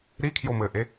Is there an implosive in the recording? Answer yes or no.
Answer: no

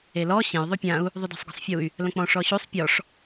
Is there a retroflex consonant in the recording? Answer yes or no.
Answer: yes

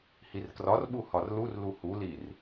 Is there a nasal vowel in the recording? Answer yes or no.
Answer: no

